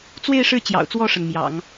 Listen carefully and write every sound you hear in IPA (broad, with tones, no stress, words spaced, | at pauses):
t͡swe˥˧ɪ̯ʂɻ̩˥˩ t͡ɕjɑ̰˨˩ʊ̯t͡swɔ˥˩ʂə˩n mjɑ̰˨˩˦ŋ